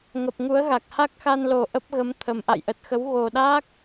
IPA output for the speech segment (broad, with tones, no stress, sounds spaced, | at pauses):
ŋ ə˨˩ p̚ ŋ u˨˦ ə̯ ɣ a˨˩ k̚ h a˦˥ k̚ x a˧ n l o˨˩ ʔ ə˦˥ p̚ ɣ ə˨˦ m t̪ʰ ə˨˩ m ʔ a̰˧˨ j ʔ ə˨˩ t̚ x ə˨˦ w ɣ o˨˩ ɗ a˦˥ k̚